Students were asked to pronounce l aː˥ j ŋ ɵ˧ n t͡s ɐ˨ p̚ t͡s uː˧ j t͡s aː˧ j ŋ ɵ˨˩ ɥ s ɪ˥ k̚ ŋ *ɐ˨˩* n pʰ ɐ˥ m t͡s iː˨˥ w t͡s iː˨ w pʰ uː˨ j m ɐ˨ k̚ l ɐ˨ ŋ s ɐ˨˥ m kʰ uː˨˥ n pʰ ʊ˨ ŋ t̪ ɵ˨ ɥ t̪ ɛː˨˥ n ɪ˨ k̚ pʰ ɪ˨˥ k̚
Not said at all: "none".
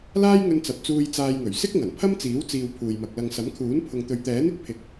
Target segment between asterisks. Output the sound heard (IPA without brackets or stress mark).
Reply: ɐ˨˩